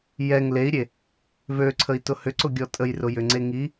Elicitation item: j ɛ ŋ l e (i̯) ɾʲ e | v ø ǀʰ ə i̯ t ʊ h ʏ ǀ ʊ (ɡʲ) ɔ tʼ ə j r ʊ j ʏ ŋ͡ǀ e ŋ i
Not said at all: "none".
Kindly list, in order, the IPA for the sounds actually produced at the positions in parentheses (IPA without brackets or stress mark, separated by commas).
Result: i̯, ɡʲ